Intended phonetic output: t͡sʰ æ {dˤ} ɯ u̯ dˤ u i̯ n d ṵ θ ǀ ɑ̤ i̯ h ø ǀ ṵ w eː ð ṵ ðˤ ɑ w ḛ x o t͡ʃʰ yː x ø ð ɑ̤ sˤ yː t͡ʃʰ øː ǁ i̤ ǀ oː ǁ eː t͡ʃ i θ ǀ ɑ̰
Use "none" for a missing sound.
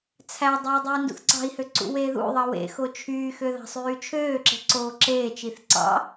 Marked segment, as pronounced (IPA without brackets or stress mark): dˤ